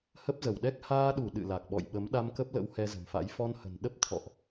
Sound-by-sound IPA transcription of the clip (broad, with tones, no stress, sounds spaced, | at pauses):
h ə˦˥ p̚ z ə˧˩ w ɗ ɛ˦˥ k̚ h aː˧ ɗ u˧˩ ɗ ɨ̰˧˨ l a˨˩ k̚ ɓ ɔ̰˧˨ j ɓ ə˨˦ m ɗ a˧ m k ə˦˥ p̚ l ə̰˧˥ w h ɛ˧ z ə̤˨˩ m f a̰˧˥ j f ɔ˧ n h ə̤˨˩ n ɗ ə˦˥ p̚ t̪ʰ ɔ̰˧˨ ʔ